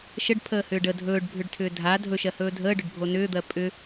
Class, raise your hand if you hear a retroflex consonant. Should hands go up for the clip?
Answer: yes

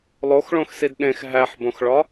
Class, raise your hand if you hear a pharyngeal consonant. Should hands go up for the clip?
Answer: yes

